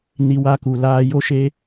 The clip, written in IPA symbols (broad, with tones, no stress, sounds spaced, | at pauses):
n i˨ w a˧ k u˨ l aː˧ j o˦ ʃ e˦